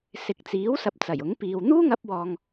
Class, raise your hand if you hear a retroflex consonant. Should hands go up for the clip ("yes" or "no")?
no